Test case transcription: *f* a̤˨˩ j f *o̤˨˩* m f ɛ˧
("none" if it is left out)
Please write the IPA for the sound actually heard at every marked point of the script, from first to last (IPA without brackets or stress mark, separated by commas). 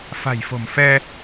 f, o̤˨˩